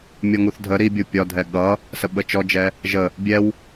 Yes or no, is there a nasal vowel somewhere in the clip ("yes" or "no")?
no